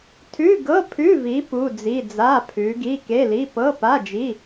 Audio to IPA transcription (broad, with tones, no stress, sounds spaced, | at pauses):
tʰ ʉ˧˥˧ ɡ ɤ˧˥˧ pʰ ʉ˧˥˧ v i˨˦ p u˧˥˧ d͡z i˧˥˧ d͡z a˧˥˧ pʰ ʉ˨˦ ɡ i˧˥˧ k e˧˥˧ l i˧˥˧ p ɤ˧˥˧ p a˧˥˧ d͡ʒ i˧˥˧